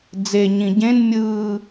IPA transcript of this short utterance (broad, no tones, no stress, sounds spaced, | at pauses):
d͡z e ɲ ĩ ɟ ẽ n mʲ ɯː